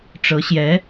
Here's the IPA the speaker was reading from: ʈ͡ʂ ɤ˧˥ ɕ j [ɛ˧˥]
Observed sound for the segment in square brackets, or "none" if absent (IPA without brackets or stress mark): ɛ˧˥